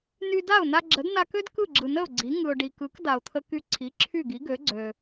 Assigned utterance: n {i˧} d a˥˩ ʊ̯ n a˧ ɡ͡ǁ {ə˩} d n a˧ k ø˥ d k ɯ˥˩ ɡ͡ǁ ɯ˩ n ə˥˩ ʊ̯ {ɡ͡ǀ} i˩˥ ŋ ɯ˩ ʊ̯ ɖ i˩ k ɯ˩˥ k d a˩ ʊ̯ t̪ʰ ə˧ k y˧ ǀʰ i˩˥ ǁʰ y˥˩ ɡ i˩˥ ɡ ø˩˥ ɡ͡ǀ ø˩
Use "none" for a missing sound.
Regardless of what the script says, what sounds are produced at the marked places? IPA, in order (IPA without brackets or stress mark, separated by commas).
y˧, ə˩˥, ɡ͡ǀ